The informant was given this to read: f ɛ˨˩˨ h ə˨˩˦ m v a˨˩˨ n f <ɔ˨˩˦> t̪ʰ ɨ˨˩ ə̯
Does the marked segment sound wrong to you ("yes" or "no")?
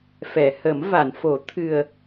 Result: yes